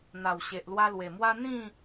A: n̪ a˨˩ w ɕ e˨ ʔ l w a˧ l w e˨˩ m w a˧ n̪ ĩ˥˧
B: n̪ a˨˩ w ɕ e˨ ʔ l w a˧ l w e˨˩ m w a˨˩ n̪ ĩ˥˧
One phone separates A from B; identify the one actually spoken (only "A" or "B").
A